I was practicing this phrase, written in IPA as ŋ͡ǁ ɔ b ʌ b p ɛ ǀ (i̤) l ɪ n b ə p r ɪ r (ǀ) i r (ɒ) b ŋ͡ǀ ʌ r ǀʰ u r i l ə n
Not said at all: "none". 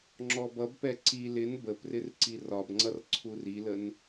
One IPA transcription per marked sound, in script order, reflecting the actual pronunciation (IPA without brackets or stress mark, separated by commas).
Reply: i, ǀ, ɒ